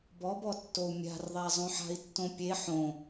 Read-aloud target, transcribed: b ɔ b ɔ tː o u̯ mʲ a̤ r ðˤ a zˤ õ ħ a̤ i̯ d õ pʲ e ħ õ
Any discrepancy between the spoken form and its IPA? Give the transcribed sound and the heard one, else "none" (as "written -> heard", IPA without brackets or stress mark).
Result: d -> tː